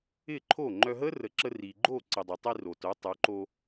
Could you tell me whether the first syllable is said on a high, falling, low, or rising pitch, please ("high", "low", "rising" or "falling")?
falling